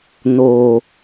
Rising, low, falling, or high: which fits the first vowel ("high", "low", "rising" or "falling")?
low